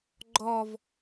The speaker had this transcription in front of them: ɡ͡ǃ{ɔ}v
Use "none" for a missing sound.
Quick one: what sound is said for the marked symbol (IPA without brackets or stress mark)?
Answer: ɔ